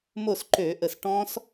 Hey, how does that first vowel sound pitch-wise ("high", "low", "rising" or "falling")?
falling